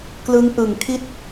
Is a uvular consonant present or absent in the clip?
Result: absent